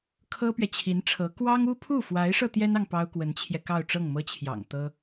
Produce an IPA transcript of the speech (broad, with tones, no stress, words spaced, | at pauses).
kʰɤ˥pɥɛ˨t͡ɕʰi˧˥nʈ͡ʂʰɤ˧˥ kwɑ˥ŋ u˥ pʰu˥˩fwa˧˥ɪ̯ʂɤ˧ t̪jɛ˥nɑ˨ŋ pɑ˥ʊ̯kwə˧˥nt͡ɕʰjɛ˧ kɑ˥˧ʊ̯ʈ͡ʂɤ˥˩ŋmɤ˥t͡ɕʰjɑ̰˨˩ŋ t̪ɤ˥